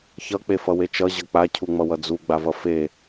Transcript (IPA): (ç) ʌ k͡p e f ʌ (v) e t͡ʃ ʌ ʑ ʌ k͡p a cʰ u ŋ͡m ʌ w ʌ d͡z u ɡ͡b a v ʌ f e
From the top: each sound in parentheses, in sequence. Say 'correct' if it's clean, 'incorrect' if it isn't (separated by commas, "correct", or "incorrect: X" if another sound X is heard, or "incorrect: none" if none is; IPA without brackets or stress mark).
correct, incorrect: w